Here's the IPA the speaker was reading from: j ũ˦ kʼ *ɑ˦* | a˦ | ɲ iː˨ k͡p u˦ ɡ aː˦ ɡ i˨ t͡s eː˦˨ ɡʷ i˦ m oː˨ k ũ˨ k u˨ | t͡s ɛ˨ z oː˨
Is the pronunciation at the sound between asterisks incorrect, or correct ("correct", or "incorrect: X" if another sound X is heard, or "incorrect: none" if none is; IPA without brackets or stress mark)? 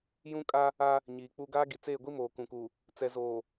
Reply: incorrect: a˦